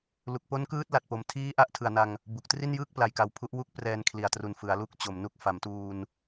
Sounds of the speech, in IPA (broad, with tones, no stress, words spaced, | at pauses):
lu˨˩k̚po˦˥nkɯː˦˥t̚ la˨˩t̚po˨˩m tʰiː˦˥ ʔa˦˥ʔtʰɯ˨˩a̯na˧ŋ | bu˨˩k̚ tri˥˩njɯː˥˩k̚ pla˨˩jka˨˩w pʰu˦˥ʔwu˥˩k̚ prɛː˧nkʰli˨˩a̯tru˨˩n fɯ˩˦a̯lu˥˩k̚t͡ɕo˨˩mnu˥˩k̚ fa˩˦mtuː˧n